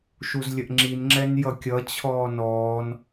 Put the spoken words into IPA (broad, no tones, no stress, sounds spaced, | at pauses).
ʃ u z lʲ ə ʔ ŋ͡ǁ i n ŋ͡ǁ ɛ n j ʌ kʲ ʌ t͡ɕʰ ɔː n ɔː n